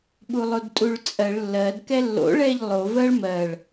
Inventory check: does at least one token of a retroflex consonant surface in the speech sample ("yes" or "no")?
yes